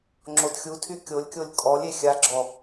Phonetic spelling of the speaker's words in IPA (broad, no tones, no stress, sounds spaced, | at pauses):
ŋ͡ǁ o d xʲ u tʰ y kʲ o lʲ kʲ o lʲ kʼ ɔ lʲ e xʲ a ɡ͡ǁ ɔ